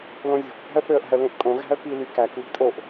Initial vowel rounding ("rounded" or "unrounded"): rounded